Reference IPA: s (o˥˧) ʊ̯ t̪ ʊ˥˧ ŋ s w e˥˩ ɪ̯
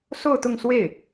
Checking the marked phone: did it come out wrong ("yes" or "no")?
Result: no